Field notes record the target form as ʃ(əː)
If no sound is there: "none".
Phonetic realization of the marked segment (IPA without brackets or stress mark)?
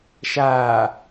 aː